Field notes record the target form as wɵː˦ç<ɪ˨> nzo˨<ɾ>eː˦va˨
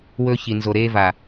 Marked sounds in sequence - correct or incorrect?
incorrect, correct

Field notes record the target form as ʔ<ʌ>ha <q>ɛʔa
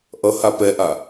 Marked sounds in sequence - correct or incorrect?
correct, incorrect

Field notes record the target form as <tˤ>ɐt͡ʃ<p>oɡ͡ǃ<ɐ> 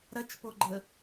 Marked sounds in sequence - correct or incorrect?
incorrect, correct, incorrect

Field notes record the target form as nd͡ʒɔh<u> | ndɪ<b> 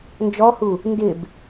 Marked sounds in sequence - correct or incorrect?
correct, correct

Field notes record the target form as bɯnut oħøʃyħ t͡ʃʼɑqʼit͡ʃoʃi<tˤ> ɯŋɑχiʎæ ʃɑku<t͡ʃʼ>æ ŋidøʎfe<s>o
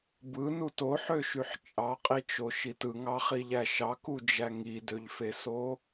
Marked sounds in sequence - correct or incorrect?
incorrect, incorrect, correct

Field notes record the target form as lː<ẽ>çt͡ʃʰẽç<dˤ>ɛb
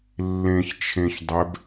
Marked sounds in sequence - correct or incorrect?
correct, correct

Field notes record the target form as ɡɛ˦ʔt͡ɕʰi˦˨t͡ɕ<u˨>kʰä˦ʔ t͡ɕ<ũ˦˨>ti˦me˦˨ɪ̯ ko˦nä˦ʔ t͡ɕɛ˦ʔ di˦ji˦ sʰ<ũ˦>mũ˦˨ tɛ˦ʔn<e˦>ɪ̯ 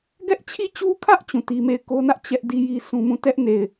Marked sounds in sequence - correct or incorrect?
incorrect, correct, correct, incorrect

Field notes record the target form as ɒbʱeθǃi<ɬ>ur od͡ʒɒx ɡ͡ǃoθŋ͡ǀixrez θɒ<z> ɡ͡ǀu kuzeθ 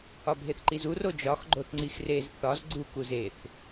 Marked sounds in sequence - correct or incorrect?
incorrect, correct

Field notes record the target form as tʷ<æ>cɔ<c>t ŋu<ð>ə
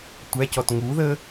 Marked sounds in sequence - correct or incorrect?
correct, incorrect, correct

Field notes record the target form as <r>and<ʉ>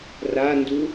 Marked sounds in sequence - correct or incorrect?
correct, incorrect

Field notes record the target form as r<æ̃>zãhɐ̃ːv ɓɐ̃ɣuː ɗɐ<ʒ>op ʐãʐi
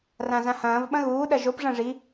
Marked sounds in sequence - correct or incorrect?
incorrect, correct

